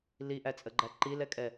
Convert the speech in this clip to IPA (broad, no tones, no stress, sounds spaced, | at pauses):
l i ʔ æ t͡sʼ ə ɡ͡ǃ æ ǃ i l ɛ kʼ ɛ